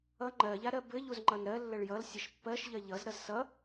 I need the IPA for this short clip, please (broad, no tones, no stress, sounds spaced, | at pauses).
ʌ ŋ͡ǃ ɜ ʎ a ɾ ɜ b ɘ ʎ u z ŋ͡ǃ ʌ n ɾ ɜ lː ə ɭ j ʌ l sʲ ʌ ʃ pː ɜ ʃ ʎ ɜ ʎ ʌ z ɾ ʌ z s ʌ